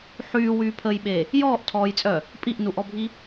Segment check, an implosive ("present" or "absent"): present